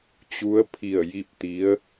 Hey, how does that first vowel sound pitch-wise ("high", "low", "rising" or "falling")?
rising